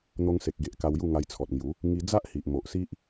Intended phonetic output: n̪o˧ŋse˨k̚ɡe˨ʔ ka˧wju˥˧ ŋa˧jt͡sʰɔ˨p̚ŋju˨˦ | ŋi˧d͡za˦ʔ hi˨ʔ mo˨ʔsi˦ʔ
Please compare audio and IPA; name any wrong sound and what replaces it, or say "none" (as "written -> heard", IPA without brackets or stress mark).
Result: p̚ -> t̚